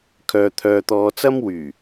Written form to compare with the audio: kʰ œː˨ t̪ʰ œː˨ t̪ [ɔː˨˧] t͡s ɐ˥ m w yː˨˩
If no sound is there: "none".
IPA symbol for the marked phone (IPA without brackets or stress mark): ɔː˨˧